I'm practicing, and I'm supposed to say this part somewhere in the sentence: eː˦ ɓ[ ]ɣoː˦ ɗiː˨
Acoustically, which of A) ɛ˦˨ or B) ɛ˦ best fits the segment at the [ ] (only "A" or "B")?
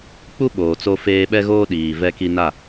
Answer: B